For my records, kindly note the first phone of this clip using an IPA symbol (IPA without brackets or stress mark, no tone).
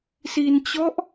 s